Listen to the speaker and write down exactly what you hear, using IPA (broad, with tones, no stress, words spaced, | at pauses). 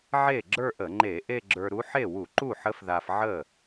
ʕe˥˩ ɡ͡ǁə˞˥˧ʔə˧˩˧ŋ͡ǃe˧˩˧ ʔe˥˧ɡ͡ǁə˞˧ɾu˧˥ ħe˥˩wu˧˩˧ǃu˥˩ħə˧˥f ða˧fʕə˥˩